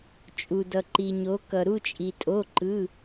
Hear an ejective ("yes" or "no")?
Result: yes